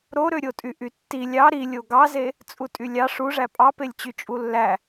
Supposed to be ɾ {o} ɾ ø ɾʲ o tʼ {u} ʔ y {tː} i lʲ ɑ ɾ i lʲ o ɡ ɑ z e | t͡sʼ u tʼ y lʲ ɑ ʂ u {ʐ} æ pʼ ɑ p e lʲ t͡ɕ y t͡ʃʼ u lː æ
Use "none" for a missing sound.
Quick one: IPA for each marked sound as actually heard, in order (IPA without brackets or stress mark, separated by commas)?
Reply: o, y, tː, ʐ